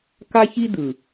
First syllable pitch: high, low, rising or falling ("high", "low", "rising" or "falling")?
high